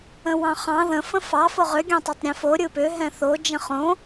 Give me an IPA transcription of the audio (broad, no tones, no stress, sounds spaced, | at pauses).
ə̃ w ɑ̃ χ ɑ̃ ð ə̃ f ə̃ f ɑ f o ʁ ʏ ɡʲ ɑ̃ tˤ ɑ tˤ ɾʲ ɛ̃ f o ɾʲ ɯ p ʏ ɦ ɛ̃ θ o d͡ʒ ə̃ χ õ